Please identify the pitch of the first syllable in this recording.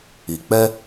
low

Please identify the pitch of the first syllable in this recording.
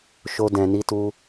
high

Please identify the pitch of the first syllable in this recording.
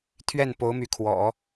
falling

